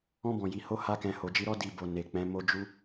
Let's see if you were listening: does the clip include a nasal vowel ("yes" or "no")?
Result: yes